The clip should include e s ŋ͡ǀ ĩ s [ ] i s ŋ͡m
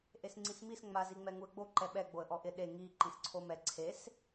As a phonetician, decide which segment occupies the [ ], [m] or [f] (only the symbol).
m